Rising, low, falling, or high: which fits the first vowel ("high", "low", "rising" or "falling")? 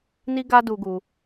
high